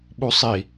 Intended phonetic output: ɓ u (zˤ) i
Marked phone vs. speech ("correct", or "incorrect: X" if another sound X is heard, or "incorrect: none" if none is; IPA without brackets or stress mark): incorrect: sˤ